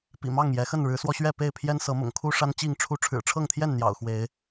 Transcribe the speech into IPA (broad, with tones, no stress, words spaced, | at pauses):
pḭ˨˩mɑ˥˨ŋjɛ˨˦xə˥˨n ɻɻ̩˨˦swɔ˧ɕɥɛ˥˨ pe˥˨ɪ̯pʰjɛ˦nsɤ˨˦ mʊ̰˨˩ŋkʰu˦ʂa˦n t͡ɕi˥˨ŋʈ͡ʂʰu˦ ʈ͡ʂʰɻ̩˨˩ʈ͡ʂʰɤ˥˨ŋt̪ʰjɛ˥˨n n̪jɑ̰˨˩ʊ̯xwe˨˦ɪ̯